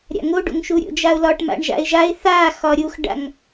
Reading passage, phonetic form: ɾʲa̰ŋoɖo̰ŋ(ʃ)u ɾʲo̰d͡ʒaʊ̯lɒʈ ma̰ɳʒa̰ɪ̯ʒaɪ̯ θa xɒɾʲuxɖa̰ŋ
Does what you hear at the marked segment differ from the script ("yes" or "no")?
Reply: no